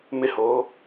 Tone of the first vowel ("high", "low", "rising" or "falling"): high